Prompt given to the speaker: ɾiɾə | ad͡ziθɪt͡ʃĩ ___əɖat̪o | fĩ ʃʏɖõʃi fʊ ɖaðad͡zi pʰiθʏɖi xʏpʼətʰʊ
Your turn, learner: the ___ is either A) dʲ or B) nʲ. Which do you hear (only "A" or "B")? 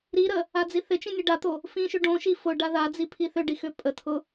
B